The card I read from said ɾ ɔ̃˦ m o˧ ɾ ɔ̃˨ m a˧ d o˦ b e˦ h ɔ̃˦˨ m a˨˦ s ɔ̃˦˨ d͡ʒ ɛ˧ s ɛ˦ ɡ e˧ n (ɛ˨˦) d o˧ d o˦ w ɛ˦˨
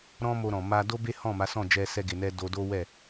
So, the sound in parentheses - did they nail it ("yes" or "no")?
no